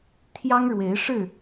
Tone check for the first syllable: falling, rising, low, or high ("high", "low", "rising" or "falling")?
high